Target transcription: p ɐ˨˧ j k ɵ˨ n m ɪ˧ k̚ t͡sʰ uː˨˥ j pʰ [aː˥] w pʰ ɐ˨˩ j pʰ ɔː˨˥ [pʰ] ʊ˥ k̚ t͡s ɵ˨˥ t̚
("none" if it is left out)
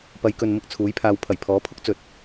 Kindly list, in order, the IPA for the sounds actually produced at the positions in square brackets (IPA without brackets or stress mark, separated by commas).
aː˨˧, pʰ